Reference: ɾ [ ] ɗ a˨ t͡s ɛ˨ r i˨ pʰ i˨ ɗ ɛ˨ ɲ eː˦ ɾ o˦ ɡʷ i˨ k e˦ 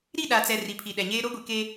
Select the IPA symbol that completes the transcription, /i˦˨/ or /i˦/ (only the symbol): i˦˨